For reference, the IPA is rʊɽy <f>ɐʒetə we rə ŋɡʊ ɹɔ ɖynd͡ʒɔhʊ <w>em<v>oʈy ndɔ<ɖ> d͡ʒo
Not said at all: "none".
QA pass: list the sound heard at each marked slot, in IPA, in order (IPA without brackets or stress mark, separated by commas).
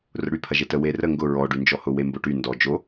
pʰ, w, b, none